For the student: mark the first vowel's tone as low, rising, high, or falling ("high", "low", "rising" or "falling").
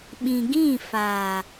low